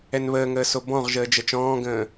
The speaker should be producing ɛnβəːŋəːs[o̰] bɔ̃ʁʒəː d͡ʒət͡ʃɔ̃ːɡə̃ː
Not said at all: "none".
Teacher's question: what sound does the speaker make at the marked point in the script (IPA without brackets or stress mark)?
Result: o